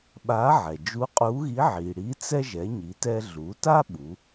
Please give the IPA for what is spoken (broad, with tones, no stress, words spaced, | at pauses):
ɓa˧˥ʕɛ˩ d͡ʒu˧˥qʼu˧˥ ɣi˧˥ʕi˩ ɽi˧˥t͡sɛ˥ ʒɛ˩˧ɲi˩˧tɛ˧ɮu˩˧ ta˥ɓu˩˧